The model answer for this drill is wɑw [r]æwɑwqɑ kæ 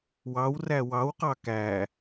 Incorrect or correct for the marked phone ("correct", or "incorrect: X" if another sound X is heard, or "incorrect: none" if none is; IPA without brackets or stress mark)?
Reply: correct